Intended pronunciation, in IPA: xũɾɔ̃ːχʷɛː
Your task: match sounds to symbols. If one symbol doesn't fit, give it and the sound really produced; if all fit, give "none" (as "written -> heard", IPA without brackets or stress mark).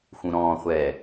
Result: none